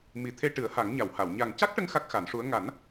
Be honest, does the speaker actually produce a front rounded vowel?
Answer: no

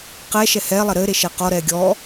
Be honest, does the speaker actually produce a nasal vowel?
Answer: no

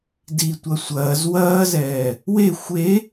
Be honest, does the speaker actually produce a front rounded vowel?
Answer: no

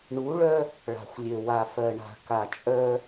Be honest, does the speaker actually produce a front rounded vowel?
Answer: yes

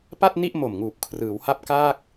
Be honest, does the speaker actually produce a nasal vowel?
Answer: no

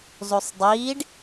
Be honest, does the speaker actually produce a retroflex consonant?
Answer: yes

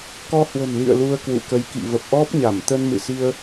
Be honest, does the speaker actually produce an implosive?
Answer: no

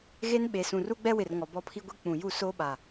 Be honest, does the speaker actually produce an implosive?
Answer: yes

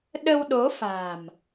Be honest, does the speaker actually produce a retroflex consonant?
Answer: no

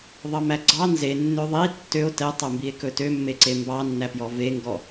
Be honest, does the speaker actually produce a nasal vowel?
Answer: no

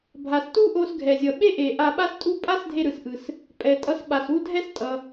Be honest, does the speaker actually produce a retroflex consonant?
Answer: no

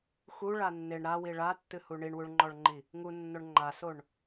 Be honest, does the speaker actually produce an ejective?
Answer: no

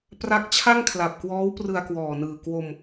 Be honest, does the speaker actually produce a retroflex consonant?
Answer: no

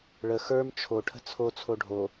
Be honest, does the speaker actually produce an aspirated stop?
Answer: yes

